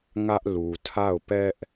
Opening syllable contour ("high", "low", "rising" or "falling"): high